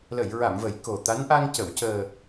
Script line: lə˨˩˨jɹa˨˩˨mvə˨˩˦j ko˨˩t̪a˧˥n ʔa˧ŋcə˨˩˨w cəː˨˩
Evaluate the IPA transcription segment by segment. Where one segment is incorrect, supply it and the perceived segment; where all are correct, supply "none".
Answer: none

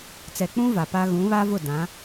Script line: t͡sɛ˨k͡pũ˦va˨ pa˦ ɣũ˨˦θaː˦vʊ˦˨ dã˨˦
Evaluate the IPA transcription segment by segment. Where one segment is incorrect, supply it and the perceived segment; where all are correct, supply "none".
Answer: θ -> β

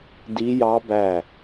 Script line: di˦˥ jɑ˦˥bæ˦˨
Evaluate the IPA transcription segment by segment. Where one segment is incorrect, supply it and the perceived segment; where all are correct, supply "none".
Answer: none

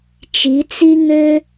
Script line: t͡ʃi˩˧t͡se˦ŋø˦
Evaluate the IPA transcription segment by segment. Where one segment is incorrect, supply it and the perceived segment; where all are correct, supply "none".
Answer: e˦ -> i˦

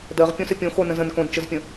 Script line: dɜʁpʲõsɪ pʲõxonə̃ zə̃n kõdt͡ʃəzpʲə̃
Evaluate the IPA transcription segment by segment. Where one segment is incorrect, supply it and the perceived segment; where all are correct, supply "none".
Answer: none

